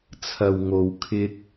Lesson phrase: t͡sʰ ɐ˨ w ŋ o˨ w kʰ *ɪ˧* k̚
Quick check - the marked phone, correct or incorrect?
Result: correct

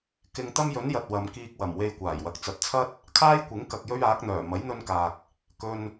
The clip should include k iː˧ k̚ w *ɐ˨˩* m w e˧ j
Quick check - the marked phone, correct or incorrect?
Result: correct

